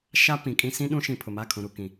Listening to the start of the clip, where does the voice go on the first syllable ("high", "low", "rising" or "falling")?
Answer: high